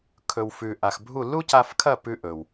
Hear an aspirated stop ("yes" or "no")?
yes